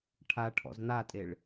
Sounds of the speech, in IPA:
ʈʰ a ʈʰ ɔ̰ z n̪ a tʼ e ɭ

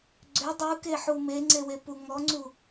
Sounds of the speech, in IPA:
ɡ͡ǀ ø dˤ u k e ħ u m e ŋ͡ǀ e w e p u ŋ ɔ ŋ͡ǀ u

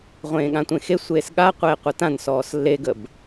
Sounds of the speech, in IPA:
ʁʷ ẽː ɠ ã tʷ ẽ x e sʷ eː s ɠ a qʷ eː qʷ ɐ t ã n s ɔː s lː e ɡ ə b

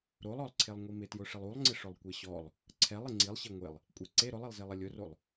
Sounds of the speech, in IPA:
ɾ o lˠ ɔ lˠ ǀʰ e lˠ ŋʷ i m ɪ t j ʊ ʂ ɪ lˠ u lˠ ŋ͡ǀ ɪ ʂ ʊ lˠ kʷ e ɕ ɔ lˠ | ǀʰ ɛ lˠ ɪ ŋ͡ǀ i lˠ ɕ e ŋʷ e lˠ | kʷʼ e ǀ e ɾ ʊ lˠ i lˠ z e lˠ ɪ lʲ ʊ r o lˠ

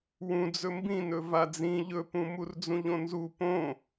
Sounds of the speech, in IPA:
w ũ d͡z ɵ m b ĩ n ɵ v a d͡z ĩ ʎ ɵ p ũ m u r d͡z ũ ʎ õ n z u p õ

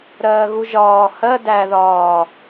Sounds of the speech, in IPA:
ɾ ɜː ɣ u ʒ ɒː h ɜ d æ ð ɒː

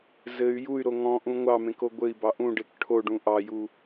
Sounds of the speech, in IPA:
z ɘ y̯ j u y̯ ɾ o ŋ ɔ̃ ʔ ũ ŋʷ ɑ m ẽ k o ɡʷ ɘ i̯ b ɑ ʔ ũ ɖ e k ʈʰ o ɖ ũ ʔ ɑ j u

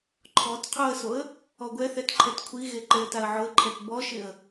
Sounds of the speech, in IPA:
ǃʰ ɔ t qʰ o ə̯ s o ə̯ | ɔ ɡʷ ɛ θ ɛ t ǃʰ ɛ t kʷʰ i ɣ e ǃ e ə̯ t a ə̯ ʕ ʊ ə̯ ǃʰ ɛ t b ɔ ʃ ɪ ə̯

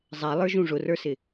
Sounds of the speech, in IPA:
zˤ ɛ lˠ ə˞ ʒ ũ ʐ ʊ r ə˞ s ɪ

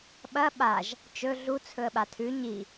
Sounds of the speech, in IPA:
ɓ ɐ ɓ a ʒ | t͡ʃ ɵ ɮ u t͡sʰ ɵ ə̯ ɓ a tʰ ʉ ɲ i

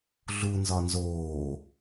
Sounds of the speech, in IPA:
ɮ u n z ɒ n z oː

